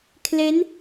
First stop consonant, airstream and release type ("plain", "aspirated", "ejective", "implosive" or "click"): aspirated